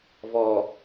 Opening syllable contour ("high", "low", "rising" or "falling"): low